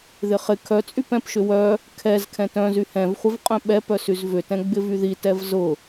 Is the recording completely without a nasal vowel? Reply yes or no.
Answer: no